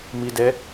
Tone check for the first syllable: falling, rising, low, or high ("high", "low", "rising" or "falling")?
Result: low